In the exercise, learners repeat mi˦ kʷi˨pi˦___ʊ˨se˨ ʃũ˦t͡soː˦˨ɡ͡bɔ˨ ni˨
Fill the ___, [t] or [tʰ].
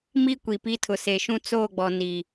tʰ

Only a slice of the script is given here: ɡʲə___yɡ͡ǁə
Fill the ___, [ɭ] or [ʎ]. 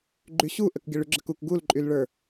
ɭ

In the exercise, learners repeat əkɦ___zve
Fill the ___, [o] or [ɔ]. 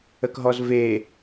ɔ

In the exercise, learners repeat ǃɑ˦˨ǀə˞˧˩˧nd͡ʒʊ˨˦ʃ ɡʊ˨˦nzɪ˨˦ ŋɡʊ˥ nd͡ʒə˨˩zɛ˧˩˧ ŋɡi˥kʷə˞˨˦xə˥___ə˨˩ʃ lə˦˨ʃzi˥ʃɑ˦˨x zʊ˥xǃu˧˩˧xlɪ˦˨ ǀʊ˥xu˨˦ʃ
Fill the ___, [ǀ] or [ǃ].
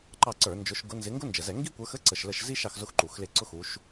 ǀ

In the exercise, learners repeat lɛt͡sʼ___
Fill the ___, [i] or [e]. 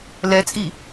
i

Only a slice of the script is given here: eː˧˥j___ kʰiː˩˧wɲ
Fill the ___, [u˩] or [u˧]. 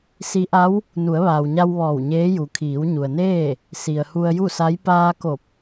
u˩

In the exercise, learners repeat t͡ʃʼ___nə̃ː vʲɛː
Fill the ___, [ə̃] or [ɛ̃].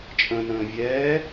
ə̃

